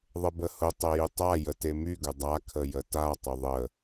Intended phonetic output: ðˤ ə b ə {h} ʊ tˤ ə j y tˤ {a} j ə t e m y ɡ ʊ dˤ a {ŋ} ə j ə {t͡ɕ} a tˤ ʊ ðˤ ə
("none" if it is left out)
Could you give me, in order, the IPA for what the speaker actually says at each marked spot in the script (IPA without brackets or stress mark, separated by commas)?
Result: h, a, kʰ, t